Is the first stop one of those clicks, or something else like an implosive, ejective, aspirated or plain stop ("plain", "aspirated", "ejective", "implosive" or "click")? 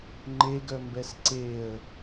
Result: click